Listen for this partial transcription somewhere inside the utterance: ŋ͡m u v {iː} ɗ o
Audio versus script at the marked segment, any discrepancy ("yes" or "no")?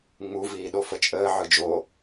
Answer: no